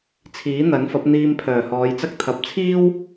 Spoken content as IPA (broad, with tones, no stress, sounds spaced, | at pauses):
t͡sʰ iː˨˥ n̪ ɐ˨˥ n f ɐ˨˥ p̚ n̪ iː˧ m pʰ œː˨˩ h ɔː˨˧ j t͡s ɐ˥ k̚ t̪ʰ ɐ˨ p̚ t͡sʰ iː˥ w